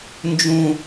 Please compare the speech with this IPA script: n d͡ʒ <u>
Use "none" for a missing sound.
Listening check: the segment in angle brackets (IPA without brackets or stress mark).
ũ